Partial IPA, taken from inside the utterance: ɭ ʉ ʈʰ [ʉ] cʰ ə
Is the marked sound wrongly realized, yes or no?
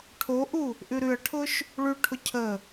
yes